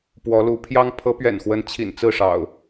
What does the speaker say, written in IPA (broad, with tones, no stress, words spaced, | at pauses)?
pwɔ˨˦lu˨˦ pʰjɑ˦ŋ pʰɤ˨˦pɥɛ̰˨˩nxwə˨˦n t͡ɕʰḭ˨˩nt͡sɹ̩˥˨ʂɑ̰˨˩ʊ̯